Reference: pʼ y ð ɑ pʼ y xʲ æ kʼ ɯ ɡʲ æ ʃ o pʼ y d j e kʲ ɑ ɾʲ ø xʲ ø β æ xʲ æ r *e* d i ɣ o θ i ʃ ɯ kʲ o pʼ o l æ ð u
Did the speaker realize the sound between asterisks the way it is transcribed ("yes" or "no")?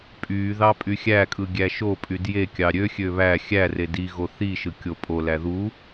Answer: yes